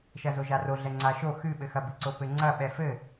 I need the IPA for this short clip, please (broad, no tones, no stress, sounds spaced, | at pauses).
ʃ ɐ z o ʒ a r o ɮ ɛ ŋ͡ǀ a ʃ o x ɨ ɓ ɘ x ɐ b i ǀ o p ɘ ŋ͡ǀ ɐ ɓ ɛ f ɘ